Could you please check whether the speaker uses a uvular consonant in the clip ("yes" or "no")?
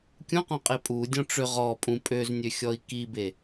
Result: yes